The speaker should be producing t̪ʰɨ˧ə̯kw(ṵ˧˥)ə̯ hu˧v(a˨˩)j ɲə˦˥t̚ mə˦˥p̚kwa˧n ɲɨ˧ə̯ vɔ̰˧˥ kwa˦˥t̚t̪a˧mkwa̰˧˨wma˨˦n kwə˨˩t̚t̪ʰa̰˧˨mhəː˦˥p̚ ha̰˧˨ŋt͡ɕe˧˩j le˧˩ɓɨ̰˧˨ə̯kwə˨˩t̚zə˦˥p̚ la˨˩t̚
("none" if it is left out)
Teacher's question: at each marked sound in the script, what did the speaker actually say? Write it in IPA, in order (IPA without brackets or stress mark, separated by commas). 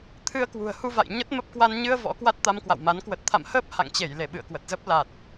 ṳ˨˩, a̰˧˨